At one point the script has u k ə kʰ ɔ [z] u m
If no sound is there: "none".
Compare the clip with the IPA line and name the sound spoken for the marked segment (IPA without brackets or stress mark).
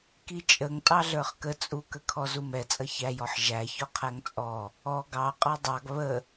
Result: z